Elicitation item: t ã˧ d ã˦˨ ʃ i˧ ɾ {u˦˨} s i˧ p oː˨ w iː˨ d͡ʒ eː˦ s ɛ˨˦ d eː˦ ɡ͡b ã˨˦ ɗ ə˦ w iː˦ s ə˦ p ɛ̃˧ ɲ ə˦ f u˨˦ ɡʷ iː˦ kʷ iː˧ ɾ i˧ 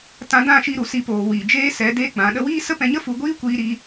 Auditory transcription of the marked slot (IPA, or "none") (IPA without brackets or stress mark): u˨